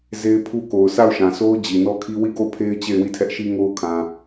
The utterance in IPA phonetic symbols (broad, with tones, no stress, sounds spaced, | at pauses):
z e˦ ɪ̯ pʰ u˦ k o˨ ʊ̯ sʰ a˦˨ ʊ̯ ʃ ã˨ sʰ o˦ ʊ̯ d͡ʑ i˨ n ɔ˦ kʰ i˦ w i˦˨ ɡ o˦˨ ʊ̯ pʰ e˦ ɪ̯ t͡ɕ e˦˨ ɪ̯ w i˦˨ tʰ ɛ˦ ʔ ʃ i˦ ŋ o˦ ʊ̯ kʰ ã˨